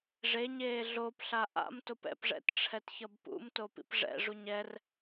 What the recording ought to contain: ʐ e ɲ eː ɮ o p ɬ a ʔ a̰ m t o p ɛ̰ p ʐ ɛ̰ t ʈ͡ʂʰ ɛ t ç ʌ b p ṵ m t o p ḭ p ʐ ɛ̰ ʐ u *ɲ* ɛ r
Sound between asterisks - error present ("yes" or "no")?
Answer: no